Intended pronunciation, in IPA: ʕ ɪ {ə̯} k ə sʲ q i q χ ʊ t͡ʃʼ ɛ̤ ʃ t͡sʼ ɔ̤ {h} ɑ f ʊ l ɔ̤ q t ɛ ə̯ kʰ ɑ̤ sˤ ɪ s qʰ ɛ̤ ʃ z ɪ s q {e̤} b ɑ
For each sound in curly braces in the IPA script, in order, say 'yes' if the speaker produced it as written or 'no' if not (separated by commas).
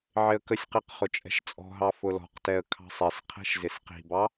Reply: yes, no, no